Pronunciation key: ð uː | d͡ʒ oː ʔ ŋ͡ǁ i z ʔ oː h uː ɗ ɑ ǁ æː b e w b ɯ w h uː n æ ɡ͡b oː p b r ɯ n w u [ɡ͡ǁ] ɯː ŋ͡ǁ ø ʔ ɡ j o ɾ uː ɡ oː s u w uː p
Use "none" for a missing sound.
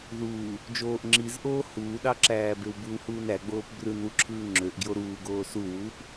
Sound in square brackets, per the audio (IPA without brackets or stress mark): ǁʰ